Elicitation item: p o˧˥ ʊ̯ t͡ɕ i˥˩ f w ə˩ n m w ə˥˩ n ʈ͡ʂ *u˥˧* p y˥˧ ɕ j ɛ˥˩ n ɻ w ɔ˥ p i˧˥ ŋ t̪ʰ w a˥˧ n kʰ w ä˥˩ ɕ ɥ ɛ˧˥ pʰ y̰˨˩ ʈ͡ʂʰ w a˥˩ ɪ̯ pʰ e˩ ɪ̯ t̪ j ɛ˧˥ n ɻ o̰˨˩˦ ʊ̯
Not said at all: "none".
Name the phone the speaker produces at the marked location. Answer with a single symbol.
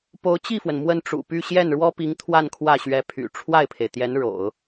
ṵ˨˩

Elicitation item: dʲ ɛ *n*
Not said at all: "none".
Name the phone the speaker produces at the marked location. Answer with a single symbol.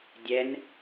n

